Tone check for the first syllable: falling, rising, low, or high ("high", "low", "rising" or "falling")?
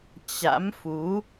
rising